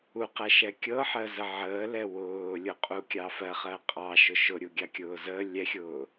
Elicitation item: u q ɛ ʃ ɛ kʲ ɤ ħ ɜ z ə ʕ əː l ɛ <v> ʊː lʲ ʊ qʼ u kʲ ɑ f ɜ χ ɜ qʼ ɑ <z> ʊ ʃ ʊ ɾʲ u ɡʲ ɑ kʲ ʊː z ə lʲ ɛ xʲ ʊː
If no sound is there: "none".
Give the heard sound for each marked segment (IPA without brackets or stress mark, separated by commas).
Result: w, ʃ